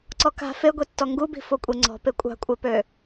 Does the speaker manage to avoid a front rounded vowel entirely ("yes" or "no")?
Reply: no